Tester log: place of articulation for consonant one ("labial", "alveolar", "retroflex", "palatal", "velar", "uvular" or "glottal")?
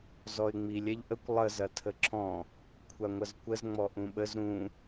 alveolar